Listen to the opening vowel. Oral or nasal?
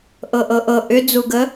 oral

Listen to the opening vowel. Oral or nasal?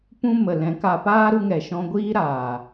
nasal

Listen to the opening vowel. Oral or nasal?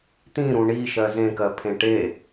nasal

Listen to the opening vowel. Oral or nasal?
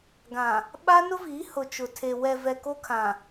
nasal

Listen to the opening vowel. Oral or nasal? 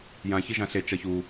nasal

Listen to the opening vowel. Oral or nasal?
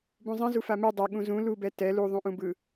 nasal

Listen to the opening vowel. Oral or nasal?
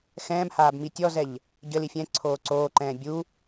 nasal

